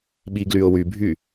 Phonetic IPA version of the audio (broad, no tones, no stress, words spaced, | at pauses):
ɓiɡlyʊ̯wybʱy